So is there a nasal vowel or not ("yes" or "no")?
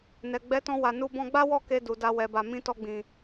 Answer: yes